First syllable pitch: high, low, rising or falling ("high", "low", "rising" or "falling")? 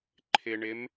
low